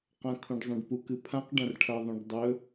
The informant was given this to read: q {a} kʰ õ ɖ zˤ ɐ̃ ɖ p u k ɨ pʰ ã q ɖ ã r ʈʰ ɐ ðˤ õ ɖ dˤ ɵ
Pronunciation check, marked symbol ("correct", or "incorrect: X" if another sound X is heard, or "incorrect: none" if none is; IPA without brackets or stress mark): incorrect: ã